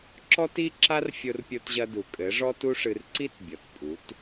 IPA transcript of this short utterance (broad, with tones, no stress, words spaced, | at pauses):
ǁɔ˦ti˦ǁa˦r fʲo˦rpʲo˦tʑɐ˦ du˨ kʼɘ˨˦ʐɔ˦tu˦ʂɨ˧r ǀi˦tbʲɔ˨tpʼu˨˦t